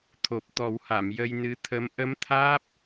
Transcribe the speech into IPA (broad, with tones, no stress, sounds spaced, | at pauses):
t̪ʰ o˨˩ p̚ t̪ ɔ˨˩˦ w h a˨˩˨ m j ə˧ j n ɨ˧˥ t̪ʰ ə˧˥ m ʔ ə˧˥ m t̪ʰ aː˦˥ p̚